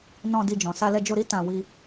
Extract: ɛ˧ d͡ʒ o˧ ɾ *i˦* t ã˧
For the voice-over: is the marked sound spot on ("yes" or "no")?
yes